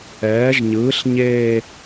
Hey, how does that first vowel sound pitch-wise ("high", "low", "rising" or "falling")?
rising